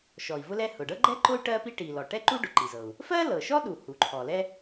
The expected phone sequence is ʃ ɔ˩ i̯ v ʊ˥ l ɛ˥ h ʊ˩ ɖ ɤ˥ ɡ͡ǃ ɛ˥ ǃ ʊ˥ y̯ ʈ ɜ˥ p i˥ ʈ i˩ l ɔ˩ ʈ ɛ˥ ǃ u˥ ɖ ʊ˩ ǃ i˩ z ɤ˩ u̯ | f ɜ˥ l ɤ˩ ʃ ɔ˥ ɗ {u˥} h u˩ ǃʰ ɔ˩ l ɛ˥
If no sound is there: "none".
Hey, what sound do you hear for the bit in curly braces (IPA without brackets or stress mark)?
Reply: u˩